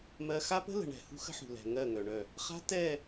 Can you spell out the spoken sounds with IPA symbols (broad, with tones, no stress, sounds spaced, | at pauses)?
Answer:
m ɜ˦ x a˦ p ə̤˦ l ə̤˨ ɳ ɛ̤˨ h ṳ˦ x ə̤˦ ħ ṳ˨ l ɛ̤˨ ŋ ɜ˦˨ ŋ œ˨ ɳ œ˦˨ | χ a̤˦ t ɛ˦˨